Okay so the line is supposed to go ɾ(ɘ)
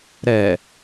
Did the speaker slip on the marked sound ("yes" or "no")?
yes